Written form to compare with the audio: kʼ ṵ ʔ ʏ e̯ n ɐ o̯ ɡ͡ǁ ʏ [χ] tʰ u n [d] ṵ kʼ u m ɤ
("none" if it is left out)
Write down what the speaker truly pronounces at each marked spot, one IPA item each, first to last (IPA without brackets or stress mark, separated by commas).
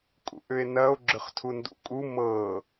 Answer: χ, d